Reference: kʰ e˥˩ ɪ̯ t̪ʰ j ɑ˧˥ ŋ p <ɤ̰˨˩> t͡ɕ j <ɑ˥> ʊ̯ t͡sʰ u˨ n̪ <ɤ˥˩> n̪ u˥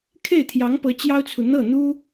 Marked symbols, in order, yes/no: no, yes, yes

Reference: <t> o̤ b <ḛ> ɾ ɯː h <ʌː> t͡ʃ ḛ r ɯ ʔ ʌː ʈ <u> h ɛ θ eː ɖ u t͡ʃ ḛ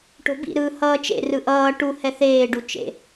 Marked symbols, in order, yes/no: no, no, yes, yes

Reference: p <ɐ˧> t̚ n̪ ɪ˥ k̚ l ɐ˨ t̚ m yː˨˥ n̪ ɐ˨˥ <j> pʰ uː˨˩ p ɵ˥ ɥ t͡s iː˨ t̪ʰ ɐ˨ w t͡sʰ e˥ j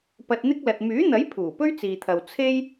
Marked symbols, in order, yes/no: yes, yes

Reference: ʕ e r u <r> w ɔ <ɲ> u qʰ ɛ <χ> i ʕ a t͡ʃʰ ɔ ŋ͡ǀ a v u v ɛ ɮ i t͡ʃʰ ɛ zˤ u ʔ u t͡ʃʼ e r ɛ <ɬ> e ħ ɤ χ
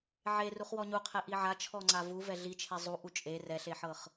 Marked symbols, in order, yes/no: no, yes, no, yes

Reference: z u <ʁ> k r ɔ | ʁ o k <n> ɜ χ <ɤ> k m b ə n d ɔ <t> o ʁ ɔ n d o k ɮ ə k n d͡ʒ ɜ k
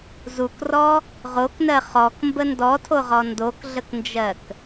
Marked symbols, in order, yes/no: no, yes, no, no

